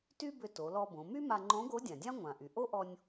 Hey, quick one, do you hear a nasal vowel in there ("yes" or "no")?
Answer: yes